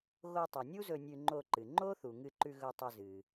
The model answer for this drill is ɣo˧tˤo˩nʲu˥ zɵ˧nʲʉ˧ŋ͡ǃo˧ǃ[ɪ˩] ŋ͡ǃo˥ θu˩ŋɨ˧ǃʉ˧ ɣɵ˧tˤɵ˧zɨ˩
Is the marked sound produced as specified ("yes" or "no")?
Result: no